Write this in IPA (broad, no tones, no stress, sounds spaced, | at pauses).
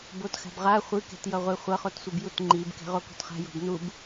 b o t x a̤ b ʁ a χʷ ɯ k ɛ̤ t j ʌ ʁʷ e χʷ ʌ χ o t sʷ ɯ b j u t ŋ͡ǃ i b k ɛ̤ ʁ o k o̤ t χ a̤ j o̤ b n u b